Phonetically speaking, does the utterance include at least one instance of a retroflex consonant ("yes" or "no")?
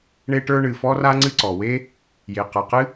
yes